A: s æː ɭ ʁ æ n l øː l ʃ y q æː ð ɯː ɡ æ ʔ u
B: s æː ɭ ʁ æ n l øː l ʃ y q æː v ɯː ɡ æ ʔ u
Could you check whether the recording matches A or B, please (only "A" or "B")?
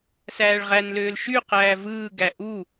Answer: B